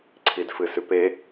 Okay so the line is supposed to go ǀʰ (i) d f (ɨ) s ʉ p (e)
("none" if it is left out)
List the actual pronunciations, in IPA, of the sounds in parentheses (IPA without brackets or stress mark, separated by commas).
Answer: i, ɨ, e